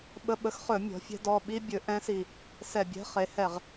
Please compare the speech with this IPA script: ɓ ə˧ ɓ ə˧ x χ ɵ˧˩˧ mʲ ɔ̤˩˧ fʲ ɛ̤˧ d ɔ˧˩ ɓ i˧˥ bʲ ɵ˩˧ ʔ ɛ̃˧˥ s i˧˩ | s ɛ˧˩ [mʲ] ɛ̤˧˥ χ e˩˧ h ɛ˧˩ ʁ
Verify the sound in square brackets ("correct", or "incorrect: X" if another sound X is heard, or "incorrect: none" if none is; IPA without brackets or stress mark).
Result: incorrect: bʲ